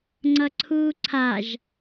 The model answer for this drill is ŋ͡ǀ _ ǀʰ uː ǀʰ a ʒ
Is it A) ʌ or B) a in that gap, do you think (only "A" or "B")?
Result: A